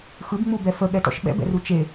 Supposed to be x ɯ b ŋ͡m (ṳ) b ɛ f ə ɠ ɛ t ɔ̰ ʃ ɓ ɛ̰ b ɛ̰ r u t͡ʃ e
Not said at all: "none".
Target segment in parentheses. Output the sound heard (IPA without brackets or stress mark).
u